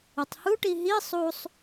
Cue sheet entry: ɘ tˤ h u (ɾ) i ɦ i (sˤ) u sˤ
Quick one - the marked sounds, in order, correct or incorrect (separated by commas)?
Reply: incorrect, correct